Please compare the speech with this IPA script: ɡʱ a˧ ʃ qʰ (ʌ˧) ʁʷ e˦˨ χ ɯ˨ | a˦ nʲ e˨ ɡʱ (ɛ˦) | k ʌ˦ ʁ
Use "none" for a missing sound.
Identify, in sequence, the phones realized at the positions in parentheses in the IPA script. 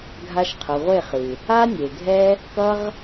ʌ˨, ɛ˦

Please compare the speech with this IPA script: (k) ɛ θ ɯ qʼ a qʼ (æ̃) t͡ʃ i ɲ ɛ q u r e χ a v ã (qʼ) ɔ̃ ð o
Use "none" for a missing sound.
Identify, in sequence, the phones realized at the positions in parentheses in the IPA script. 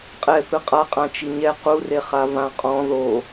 qʼ, ã, qʼ

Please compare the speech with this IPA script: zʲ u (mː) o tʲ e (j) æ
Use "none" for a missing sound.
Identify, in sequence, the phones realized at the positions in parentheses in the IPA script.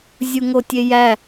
ŋ, j

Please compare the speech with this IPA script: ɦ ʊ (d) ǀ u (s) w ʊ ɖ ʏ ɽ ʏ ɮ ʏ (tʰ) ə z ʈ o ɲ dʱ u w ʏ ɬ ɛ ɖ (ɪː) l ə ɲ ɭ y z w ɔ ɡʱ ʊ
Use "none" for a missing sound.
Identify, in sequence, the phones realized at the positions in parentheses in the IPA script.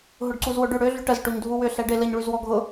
ɖ, z, ʈ, ɪ

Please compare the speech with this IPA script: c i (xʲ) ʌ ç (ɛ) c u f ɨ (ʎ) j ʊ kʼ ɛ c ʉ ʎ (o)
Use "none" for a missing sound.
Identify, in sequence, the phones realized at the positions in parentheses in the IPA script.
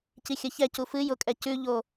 xʲ, ɛ, none, o

